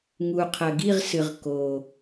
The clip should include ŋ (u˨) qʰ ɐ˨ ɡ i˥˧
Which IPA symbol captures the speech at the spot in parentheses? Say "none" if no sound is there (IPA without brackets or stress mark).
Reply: u˨